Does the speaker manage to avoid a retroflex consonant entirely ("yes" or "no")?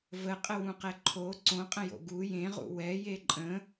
yes